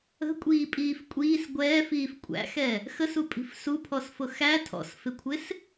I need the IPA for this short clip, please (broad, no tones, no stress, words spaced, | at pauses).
ə̤kʷʼiːpʼiːf kʷʼiːs ɡʷɛːfiːf kʷʼæ̰xɛ | xəsupʼi̤f supʰɔsfʊ xæ tʰɔ̰sfɪkʷʰɪs